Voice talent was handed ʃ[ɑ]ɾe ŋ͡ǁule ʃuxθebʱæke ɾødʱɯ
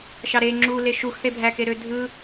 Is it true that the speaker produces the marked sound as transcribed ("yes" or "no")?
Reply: yes